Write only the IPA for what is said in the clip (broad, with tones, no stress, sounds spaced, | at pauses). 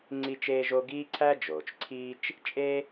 ŋ͡ǀ i˥ t͡ʃ eː˥ ʒ o˥ ɡ iː˥ ǀʰ æ˥ d͡ʒ oː˩ t͡ʃ ǀʰ iː˥ t͡ʃ | t͡ʃʼ e˥